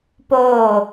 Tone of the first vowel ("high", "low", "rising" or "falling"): falling